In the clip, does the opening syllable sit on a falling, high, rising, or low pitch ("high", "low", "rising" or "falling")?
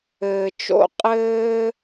low